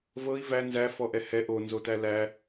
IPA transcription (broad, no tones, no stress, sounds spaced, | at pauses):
v ɤ i̯ v æ n z æ f ɔ ʔ ɛ h ɛ ʔ o n z o t æ l æ